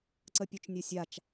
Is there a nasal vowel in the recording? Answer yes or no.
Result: no